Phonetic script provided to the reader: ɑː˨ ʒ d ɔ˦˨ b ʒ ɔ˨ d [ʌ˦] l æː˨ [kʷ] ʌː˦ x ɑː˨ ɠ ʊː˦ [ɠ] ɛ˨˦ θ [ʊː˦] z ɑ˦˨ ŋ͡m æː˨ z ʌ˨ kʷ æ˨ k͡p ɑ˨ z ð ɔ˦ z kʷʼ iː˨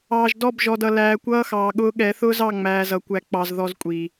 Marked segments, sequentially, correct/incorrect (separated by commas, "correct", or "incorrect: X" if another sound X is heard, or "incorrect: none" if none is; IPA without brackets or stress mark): incorrect: ʌ˨, correct, correct, correct